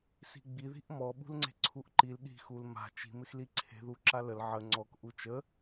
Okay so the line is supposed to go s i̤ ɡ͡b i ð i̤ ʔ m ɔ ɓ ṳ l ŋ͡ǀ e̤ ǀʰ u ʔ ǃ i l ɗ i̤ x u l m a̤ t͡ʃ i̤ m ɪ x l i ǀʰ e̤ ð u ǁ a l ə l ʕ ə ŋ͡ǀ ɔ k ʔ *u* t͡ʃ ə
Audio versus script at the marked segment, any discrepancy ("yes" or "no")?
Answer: no